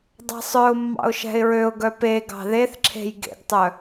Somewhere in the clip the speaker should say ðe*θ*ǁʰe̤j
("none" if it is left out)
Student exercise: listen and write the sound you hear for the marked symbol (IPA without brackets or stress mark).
θ